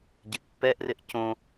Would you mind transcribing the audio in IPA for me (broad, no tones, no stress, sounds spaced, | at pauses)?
ɟ ɪ ʔ pː ɛ ʔ r ɪ ʔ c õ